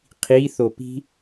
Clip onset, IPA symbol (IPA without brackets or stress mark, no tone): qʰ